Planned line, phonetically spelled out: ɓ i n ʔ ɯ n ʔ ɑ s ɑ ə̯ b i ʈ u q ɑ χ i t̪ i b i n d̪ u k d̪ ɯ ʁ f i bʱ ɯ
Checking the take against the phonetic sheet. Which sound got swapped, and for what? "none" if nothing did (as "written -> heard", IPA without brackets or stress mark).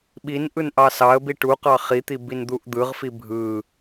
k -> ʔ